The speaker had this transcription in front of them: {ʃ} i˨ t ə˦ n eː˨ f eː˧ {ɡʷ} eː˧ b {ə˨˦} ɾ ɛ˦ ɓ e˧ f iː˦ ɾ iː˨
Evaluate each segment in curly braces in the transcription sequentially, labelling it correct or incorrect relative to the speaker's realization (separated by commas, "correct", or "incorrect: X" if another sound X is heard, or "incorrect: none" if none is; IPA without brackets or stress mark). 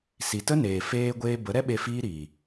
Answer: incorrect: s, correct, correct